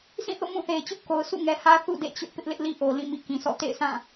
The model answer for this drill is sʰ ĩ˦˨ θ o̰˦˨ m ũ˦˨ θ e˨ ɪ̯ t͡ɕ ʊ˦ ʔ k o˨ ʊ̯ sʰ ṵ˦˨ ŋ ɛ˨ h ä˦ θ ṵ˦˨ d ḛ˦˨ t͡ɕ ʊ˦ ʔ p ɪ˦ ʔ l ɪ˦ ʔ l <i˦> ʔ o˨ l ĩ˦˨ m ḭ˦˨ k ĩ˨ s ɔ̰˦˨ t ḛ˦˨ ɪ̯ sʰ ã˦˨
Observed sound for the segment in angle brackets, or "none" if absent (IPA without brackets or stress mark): i˦